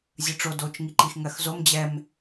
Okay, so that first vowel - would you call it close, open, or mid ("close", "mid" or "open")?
close